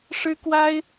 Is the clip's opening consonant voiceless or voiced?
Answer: voiceless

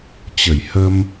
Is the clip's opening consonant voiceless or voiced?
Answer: voiceless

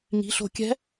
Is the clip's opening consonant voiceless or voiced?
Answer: voiced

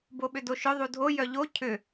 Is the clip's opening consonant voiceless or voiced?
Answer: voiced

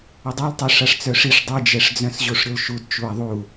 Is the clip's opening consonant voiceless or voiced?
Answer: voiced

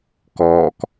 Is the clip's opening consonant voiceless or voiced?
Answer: voiceless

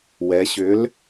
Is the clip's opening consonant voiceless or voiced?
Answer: voiced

